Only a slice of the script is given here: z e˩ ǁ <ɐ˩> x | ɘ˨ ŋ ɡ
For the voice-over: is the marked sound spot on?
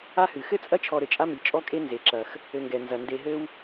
yes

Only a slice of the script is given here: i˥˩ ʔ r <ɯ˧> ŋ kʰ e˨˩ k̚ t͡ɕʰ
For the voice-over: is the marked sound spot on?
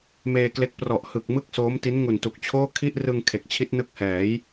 yes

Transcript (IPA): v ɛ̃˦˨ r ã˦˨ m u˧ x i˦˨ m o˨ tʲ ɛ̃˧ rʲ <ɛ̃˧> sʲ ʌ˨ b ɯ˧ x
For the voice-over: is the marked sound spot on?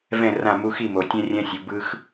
yes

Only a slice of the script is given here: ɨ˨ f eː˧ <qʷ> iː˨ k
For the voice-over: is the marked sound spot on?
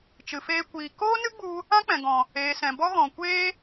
no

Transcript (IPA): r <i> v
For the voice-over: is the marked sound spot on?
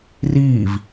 no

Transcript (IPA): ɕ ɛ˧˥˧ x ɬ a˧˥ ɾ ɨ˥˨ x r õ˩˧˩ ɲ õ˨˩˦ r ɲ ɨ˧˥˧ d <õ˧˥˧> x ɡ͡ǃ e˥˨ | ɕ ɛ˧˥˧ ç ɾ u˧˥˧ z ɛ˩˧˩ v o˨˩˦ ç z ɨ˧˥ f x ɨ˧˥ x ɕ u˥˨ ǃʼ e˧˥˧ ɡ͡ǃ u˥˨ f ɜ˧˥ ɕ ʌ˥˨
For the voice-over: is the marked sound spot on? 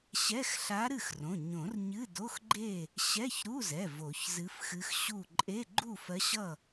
no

